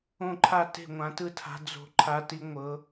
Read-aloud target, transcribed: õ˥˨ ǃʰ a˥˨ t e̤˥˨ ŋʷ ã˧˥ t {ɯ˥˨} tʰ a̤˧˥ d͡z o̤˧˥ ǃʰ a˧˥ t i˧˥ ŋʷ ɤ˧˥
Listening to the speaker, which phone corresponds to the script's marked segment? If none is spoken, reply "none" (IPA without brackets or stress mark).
ɯ˥˨